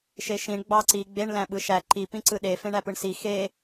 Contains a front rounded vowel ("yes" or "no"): no